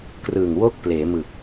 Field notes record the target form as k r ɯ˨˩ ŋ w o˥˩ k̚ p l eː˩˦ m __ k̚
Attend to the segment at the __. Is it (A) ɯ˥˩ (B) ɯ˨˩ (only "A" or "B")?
B